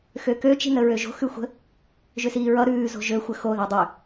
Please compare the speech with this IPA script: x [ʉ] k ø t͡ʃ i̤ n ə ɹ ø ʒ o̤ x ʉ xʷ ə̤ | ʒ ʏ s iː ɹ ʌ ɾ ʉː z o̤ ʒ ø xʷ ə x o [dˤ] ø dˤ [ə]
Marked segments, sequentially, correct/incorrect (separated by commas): incorrect, incorrect, incorrect